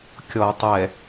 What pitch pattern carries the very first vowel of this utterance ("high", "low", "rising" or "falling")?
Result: low